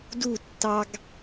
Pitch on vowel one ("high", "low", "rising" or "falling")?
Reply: falling